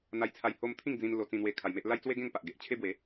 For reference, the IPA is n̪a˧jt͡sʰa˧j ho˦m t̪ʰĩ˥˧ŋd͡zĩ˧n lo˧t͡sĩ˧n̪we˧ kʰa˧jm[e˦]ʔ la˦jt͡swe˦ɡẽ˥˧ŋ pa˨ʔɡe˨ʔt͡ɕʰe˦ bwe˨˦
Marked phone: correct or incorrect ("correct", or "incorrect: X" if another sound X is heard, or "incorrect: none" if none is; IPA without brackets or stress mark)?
correct